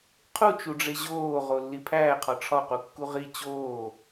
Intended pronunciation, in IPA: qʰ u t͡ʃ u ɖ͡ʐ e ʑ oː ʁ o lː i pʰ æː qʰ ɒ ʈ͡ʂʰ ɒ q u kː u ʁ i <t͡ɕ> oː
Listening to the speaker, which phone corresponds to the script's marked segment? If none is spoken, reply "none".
t͡ɕ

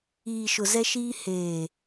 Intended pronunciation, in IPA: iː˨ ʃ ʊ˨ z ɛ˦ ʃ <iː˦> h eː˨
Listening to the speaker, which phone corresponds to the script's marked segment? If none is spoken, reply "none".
iː˦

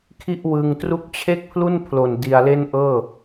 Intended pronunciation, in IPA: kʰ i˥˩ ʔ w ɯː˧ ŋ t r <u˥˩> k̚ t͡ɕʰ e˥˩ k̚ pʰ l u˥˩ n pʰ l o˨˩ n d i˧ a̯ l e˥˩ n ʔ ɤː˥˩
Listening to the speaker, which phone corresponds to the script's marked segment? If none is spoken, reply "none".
u˦˥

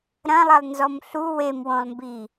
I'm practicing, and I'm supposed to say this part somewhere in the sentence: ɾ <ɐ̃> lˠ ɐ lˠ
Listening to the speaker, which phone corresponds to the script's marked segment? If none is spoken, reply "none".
ɐ̃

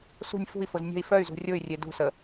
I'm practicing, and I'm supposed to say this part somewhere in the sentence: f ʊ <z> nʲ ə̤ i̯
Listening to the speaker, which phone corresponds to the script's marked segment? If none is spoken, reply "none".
z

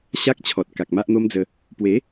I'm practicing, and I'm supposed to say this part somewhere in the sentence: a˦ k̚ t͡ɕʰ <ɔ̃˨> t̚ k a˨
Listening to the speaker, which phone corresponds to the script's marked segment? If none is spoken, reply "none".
ɔ˨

